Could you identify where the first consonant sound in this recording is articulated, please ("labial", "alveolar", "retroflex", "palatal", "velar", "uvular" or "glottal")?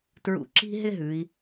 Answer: alveolar